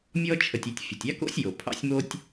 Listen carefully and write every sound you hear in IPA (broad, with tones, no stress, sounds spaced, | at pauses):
mʲ ɔ˥ t͡ʃʰ ə˨ tʲ e˨ tʲ fʲ ə˩ tʲ ɑ˥ k o̰˥ sʲ j o˩ pʰ ɑ̰˥ sʲ m o˥ tʲ